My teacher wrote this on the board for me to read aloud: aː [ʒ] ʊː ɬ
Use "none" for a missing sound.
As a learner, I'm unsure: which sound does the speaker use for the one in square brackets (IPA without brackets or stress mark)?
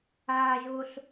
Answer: ʒ